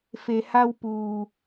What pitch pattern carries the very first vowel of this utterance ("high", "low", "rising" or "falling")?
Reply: low